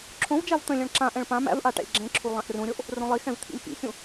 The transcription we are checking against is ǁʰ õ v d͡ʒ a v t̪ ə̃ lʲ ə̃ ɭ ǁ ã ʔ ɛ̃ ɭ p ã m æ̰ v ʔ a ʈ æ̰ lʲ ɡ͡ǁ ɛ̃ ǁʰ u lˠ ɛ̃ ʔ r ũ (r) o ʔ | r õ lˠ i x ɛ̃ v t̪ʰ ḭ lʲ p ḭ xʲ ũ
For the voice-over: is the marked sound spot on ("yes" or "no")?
no